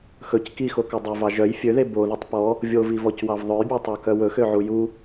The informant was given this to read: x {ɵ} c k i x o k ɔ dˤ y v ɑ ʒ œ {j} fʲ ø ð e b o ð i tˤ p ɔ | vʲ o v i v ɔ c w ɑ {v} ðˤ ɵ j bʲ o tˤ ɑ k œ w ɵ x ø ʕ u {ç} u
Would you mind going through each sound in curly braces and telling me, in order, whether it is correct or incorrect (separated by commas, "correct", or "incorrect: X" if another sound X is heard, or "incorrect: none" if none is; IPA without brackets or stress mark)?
correct, correct, correct, incorrect: j